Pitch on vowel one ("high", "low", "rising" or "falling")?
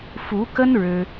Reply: rising